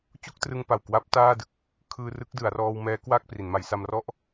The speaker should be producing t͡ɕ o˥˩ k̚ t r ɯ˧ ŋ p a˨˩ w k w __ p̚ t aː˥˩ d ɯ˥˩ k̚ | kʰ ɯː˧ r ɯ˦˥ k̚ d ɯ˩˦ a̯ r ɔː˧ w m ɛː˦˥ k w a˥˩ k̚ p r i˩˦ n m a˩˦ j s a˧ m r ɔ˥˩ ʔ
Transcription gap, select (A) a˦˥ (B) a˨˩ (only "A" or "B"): A